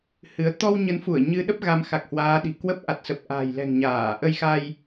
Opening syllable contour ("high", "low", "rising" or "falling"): rising